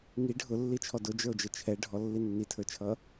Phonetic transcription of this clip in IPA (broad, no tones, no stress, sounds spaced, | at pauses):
ŋ i ɖʱ ʊ lː i t͡ʃʰ ɔ d ʊ d͡ʒ ə˞ o̯ d͡ʒ ə t͡ʃʰ ɛ ɖʱ ɔ lː i nː i tʰ ə˞ t͡ʃʰ ʌ